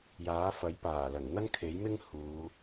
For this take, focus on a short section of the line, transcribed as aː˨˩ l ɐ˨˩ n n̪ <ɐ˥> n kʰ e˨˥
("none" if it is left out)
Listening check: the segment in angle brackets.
ɐ˥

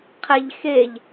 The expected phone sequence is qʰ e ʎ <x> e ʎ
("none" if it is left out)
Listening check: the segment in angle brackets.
x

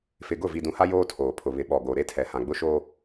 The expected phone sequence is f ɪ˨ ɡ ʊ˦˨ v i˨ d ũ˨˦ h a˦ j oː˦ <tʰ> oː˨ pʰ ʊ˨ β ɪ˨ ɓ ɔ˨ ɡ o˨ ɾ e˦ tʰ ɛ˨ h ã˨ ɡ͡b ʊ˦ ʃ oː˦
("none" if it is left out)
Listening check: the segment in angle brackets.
tʰ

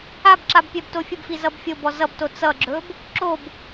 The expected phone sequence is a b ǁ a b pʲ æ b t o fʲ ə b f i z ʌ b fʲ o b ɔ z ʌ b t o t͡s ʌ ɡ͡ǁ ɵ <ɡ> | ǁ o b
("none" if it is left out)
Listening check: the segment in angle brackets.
b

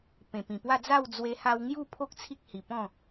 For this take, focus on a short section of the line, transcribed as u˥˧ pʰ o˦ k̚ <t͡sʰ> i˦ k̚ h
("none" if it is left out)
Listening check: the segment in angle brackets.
t͡sʰ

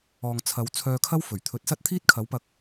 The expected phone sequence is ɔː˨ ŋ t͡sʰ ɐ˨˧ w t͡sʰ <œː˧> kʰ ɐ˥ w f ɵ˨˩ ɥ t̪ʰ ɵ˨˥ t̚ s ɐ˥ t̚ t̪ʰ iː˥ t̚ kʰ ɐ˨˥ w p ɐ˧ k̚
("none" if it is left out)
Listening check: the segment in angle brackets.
œː˧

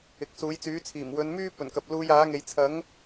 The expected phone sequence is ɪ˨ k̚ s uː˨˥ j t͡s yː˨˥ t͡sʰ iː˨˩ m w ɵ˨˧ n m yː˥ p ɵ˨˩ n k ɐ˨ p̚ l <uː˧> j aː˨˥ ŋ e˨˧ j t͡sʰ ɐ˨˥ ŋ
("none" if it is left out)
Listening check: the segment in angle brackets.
uː˧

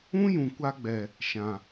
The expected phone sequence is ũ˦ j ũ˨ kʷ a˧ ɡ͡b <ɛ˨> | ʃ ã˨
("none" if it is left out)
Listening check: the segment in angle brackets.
ɛ˨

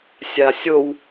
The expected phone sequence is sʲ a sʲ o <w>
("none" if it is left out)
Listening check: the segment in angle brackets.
w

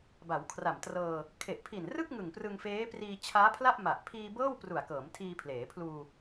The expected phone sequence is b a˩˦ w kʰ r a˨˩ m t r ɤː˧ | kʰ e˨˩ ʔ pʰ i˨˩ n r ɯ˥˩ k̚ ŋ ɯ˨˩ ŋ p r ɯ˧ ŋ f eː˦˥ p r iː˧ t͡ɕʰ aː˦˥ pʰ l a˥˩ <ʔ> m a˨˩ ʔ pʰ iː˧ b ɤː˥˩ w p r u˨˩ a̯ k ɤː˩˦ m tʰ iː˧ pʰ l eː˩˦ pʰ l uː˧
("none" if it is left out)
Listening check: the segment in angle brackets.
ʔ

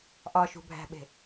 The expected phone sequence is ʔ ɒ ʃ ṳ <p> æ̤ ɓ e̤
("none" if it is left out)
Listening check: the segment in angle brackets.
bʱ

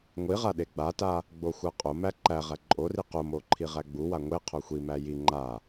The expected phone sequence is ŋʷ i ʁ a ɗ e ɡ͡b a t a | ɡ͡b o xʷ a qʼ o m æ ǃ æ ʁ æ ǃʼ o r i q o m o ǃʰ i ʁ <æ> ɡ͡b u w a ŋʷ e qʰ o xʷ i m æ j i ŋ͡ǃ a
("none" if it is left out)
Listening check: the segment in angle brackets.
æ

